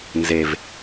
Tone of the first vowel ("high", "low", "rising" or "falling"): low